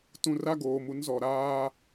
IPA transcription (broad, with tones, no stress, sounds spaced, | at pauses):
t ũ˨ r a˦ ɡ oː˨ m u˨˦ n z ɔ˨ ɾ aː˦